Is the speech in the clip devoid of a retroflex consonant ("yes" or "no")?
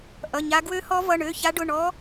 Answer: no